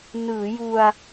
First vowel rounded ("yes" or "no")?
no